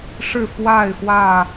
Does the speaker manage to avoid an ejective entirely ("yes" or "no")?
yes